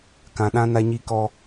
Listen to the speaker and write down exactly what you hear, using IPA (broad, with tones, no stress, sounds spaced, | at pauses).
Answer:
k ã˨ ɗ ã˦ n a˦ ɲ i˦ k ɔ˦